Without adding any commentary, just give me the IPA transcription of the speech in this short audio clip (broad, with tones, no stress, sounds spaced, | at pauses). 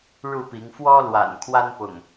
ɻ u˥˨ p i˨˦ ŋ f w ɔ˦ l w a̰˨˩ n kʰ w a˦ n p ʊ̰˨˩ ŋ